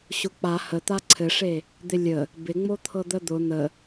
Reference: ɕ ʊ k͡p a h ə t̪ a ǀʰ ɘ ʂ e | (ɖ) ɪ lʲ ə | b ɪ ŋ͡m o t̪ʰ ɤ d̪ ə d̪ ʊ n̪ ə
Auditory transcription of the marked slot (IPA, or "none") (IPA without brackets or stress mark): d̪